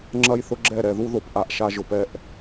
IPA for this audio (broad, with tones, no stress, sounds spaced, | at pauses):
ŋ͡ǁ ɐ˦ j θ ʊ˦ ɡ͡ǁ ɛ˦˨ ɾ ɛ˨ ð u˦ ð o˨ p ʔ a˦ ʔ ʃ a˦ ʒ ʊ˨ p ɛ˦ ʔ